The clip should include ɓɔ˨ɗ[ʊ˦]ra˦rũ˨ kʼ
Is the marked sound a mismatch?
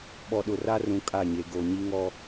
yes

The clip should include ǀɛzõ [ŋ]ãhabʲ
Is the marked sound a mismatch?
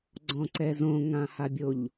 no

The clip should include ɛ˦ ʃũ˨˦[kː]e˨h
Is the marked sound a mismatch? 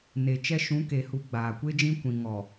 yes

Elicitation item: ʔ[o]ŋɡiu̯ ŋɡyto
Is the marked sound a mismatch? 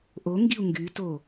no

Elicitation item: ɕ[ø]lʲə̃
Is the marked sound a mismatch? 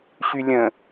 yes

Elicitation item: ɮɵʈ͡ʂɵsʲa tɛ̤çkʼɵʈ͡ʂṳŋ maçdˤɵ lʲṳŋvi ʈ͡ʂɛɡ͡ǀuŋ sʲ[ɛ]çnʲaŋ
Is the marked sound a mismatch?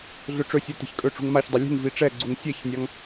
no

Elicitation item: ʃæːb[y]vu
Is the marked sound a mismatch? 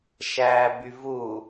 no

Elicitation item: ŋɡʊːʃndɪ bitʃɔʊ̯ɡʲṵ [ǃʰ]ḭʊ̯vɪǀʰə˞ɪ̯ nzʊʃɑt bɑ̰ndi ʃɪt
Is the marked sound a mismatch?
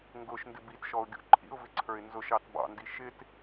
no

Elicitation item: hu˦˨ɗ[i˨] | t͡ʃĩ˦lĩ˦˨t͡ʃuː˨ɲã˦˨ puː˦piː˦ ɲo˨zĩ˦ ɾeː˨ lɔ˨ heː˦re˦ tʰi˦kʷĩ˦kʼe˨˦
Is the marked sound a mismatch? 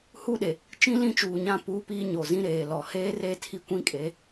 yes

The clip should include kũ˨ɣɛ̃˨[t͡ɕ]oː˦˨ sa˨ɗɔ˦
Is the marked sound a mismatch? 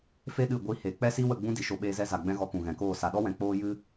yes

